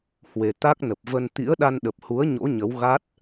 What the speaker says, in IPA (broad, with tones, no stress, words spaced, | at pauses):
hwe˧ t̪a˦˥k̚nə˨˩p̚və˧n t̪ḭ˧˥ə̯ ɗa˧nɗə˨˩p̚hu˨˦ə̯ ɲo̰˧˥ɲə˨˦w ɣa˦˥t̚